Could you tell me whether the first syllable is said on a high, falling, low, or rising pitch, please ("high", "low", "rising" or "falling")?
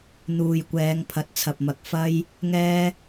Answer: low